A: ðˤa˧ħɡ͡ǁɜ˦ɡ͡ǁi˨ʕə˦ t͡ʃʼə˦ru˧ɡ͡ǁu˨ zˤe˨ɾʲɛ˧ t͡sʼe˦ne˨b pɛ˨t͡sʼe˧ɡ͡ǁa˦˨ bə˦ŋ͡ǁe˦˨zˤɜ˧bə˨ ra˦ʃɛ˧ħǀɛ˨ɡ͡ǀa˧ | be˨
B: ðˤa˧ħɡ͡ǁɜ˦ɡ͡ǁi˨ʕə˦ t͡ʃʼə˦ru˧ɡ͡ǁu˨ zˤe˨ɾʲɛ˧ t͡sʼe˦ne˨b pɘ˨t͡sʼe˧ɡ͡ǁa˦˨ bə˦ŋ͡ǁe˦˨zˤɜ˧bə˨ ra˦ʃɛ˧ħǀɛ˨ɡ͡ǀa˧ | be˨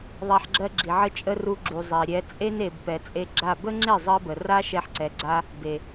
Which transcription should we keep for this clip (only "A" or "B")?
A